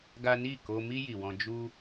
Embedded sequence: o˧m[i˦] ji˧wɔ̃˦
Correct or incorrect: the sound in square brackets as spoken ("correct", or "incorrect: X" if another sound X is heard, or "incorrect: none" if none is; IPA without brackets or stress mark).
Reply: correct